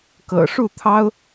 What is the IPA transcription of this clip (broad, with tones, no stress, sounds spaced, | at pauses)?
k ɤ̰˨˩ ʂ u˥˨ t̪ʰ ɑ˦ ʊ̯